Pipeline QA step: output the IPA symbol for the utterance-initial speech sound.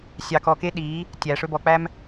sʲ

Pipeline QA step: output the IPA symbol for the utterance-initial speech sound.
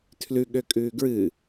tʰ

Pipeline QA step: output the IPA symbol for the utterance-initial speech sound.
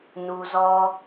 n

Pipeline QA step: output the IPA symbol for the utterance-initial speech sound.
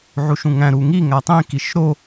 ʕ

